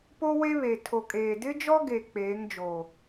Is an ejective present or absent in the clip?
present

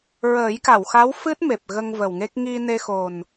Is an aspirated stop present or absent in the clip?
absent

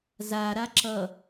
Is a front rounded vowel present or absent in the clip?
absent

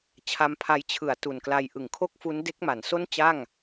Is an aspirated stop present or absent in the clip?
present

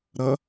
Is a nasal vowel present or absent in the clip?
absent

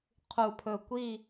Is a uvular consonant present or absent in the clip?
present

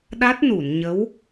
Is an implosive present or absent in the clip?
present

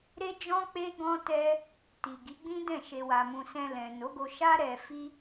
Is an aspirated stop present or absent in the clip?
absent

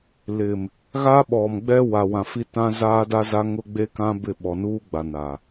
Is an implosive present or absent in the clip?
present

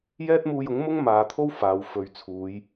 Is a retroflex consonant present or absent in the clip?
absent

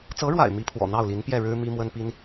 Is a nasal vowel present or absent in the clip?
absent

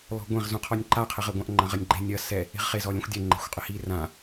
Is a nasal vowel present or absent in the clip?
present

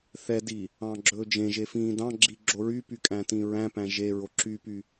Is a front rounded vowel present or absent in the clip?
present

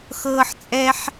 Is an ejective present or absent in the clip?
present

